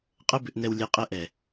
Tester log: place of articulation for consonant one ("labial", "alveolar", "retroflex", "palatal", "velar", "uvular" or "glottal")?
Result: uvular